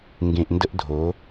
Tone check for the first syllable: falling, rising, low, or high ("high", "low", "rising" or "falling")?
low